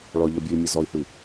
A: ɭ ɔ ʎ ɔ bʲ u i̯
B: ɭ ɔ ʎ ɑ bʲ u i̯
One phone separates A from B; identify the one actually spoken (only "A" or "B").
A